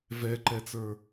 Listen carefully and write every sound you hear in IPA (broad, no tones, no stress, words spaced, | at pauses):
vɛǃɛt͡sə˞